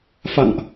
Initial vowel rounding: unrounded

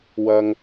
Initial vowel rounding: unrounded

